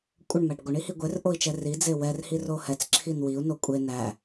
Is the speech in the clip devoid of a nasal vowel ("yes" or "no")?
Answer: yes